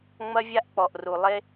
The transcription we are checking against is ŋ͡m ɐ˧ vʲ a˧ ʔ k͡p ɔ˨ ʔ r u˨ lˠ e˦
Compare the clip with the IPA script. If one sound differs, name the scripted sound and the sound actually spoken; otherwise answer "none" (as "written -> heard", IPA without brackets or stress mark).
none